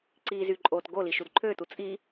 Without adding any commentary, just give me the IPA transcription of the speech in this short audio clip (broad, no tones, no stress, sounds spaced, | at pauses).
ǀ iː z y ǃʼ oː t ɡ o l i ʃ u d ǃʰ øː t u t͡sʼ i